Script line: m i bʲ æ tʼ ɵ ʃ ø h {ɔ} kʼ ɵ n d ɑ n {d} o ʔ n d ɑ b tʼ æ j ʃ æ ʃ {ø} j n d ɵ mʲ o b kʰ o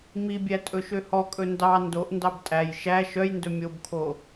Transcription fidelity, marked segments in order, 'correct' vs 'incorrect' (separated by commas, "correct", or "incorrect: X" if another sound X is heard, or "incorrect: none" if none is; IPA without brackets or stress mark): correct, correct, incorrect: œ